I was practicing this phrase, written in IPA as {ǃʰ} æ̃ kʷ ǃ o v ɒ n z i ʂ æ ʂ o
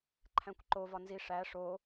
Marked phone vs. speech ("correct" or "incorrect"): correct